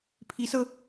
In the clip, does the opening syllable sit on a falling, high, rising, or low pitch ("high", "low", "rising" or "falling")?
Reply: rising